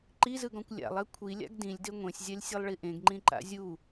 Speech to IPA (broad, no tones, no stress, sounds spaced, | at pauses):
ǃ i z ɯ ɡ ɔ̃ kʷ lʲ a̰ lˠ ɛ kʷʰ i lʲ a̰ ɡ d ĩ lʲ d e ŋʷ ẽ sʲ zʲ a lʲ sʲ e lˠ ɭ i ʔ ẽ ɡ ŋ͡ǃ ĩ ǃ a̰ zʲ u